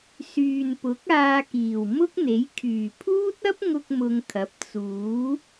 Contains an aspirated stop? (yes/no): yes